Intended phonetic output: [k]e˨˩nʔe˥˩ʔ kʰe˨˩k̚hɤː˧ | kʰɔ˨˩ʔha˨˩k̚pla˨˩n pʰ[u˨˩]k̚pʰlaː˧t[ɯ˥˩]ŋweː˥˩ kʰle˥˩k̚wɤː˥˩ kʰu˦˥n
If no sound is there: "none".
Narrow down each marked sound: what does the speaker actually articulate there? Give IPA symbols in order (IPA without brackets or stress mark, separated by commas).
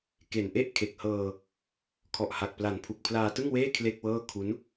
k, u˨˩, ɯ˥˩